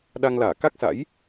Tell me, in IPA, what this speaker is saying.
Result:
ɗ a˧ ŋ l aː˧˩ k a˦˥ k̚ s a̰˧˥ j

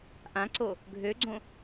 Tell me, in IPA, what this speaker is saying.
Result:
ʔ ã ǀ o | ɡʱ ø ɡ͡ǀ õ

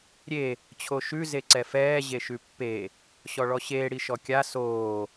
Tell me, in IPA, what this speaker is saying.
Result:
ɾʲ e | t͡ɕʰ o ʃ ʉ z e ǀ ɛ f ɛː ʑ e ʃ ʉ pː e | ɕ ɔ ɭ ɔ ɕ eː ɽ i ʃ ɔ kʲ a s oː

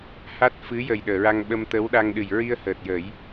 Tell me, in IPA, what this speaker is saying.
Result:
h a˦˥ t̚ f ɨ˧˥ j ə˨˩ j ɗ əː˨˩˨ ɹ a˧ ŋ ɓ ə˧ m t̪ ə˧˥ w ɗ a˧ ŋ ɗ ɨ˨˩ j ɹ i˧ ə̯ h əː˨˩ t̚ j ə˨˩˦ j

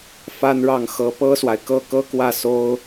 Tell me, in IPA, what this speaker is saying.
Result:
f a˥ n ɻ ɑ˥˩ ŋ x ɤ˧˥ p ɤ˥ s w a˨ ɪ̯ k ɤ˥˩ k ɤ˥ k w ä˥˩ s o˥ ʊ̯

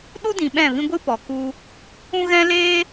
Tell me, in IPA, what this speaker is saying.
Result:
ɗ u˦ d ĩ˨ ɓ ɛ̃˦˨ v ĩ˦ ɡʷ ɨ˦ p ɔ˨ k u˧ | ũ˦ ɣ ɛ̃˦ l eː˦

